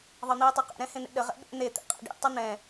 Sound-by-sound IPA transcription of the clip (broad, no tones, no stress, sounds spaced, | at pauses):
ðˤ ɤ n̪ iː tˤ ɤ q ɛ̰ ɾ ɛ̃ h ẽ n̪ ḛ ɗ ə ʁ ɛ̰ ɓ ḛ n̪ e t̪ ḛ qʼ ɛ̰ ɖ ḭ tˤ ɘ n̪ ɛ̃